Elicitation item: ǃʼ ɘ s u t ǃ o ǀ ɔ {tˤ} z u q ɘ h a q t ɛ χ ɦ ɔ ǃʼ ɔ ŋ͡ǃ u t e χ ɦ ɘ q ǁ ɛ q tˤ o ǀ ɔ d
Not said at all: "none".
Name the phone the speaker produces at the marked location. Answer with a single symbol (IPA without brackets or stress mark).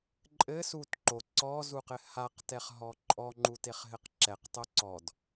none